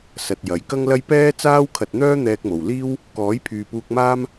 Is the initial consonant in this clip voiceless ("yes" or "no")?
yes